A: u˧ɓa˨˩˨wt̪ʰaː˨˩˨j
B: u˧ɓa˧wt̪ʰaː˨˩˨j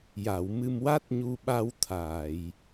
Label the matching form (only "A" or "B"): B